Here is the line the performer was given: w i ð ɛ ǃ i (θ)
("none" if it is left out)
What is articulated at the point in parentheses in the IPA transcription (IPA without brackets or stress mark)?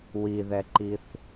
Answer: θ